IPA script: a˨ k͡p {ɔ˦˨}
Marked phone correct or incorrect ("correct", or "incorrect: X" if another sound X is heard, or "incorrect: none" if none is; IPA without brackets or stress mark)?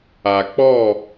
correct